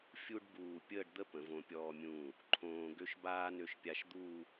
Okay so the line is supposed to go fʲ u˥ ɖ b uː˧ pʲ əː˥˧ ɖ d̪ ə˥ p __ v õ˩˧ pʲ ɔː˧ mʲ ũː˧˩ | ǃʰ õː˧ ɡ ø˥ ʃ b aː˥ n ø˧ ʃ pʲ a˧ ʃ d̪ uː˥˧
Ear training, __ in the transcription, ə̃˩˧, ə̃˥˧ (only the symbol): ə̃˩˧